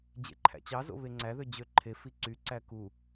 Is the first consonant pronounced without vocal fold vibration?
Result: no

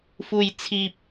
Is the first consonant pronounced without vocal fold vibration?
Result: yes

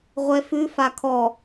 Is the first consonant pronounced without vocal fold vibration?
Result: no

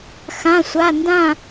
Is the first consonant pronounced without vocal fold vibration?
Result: yes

